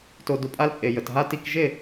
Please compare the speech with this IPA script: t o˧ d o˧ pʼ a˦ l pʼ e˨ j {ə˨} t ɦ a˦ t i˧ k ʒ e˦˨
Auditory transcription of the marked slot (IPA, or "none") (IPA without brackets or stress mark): ə˨